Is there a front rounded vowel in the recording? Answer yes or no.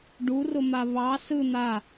no